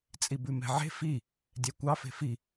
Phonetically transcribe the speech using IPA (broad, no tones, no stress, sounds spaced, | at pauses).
t͡sʼ i b ʉ m ɛ̤ ʕ e̤ f i | dʲ ɛ kʷ ɑ f e̤ f i